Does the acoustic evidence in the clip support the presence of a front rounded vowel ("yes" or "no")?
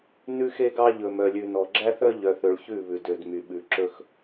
yes